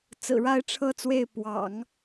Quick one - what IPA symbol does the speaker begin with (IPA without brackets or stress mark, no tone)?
t͡s